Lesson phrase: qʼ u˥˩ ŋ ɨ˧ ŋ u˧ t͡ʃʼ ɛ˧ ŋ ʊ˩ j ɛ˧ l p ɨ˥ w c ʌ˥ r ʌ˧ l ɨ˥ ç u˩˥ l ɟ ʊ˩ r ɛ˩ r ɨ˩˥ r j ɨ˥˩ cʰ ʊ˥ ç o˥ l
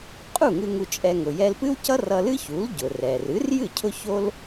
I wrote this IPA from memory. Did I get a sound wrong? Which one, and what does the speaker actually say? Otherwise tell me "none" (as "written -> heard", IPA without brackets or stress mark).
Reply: none